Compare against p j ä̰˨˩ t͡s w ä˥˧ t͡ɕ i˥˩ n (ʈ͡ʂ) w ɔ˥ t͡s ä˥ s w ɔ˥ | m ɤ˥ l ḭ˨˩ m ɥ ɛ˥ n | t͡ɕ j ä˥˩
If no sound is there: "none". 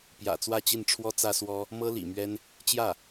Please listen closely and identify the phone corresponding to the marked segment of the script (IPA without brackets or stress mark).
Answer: ʈ͡ʂʰ